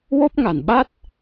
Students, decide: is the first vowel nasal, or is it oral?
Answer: oral